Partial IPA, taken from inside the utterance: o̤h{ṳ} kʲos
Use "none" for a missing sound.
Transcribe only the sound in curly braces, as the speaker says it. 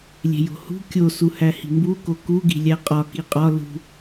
ṳ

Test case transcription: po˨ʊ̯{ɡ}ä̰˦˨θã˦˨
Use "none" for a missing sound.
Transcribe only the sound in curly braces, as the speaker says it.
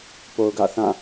ɡ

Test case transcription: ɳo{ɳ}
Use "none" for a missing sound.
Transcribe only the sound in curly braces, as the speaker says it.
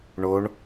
ɳ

